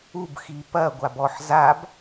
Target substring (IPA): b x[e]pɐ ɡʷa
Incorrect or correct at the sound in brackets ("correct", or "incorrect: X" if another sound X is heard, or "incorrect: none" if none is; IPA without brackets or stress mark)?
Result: incorrect: i